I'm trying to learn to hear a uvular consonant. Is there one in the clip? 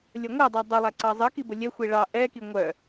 no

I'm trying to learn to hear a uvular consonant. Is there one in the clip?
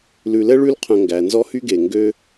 yes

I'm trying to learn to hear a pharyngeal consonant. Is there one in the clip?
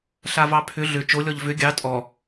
no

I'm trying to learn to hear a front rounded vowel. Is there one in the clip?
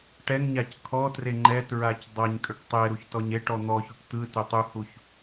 yes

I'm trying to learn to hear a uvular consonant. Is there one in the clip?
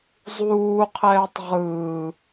yes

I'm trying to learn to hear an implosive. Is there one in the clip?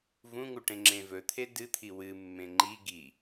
no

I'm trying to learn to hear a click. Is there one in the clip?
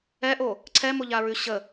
yes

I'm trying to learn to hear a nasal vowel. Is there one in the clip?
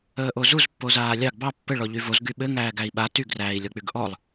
no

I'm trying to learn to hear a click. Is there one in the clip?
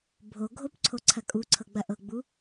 yes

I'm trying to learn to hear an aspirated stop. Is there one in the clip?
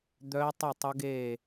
no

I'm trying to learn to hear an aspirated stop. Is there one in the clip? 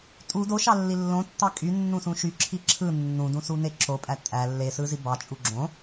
yes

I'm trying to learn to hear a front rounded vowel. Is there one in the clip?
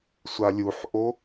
no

